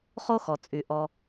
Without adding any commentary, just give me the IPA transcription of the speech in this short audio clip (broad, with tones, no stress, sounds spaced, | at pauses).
χ o˥ x ɔ˩ t͡sʼ y˩ ʔ ɔ˨